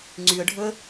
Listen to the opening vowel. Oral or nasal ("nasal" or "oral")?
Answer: oral